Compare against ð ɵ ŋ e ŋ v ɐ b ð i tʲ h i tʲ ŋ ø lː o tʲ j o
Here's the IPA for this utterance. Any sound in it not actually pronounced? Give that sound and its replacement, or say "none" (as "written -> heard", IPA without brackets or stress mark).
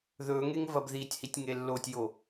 ø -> e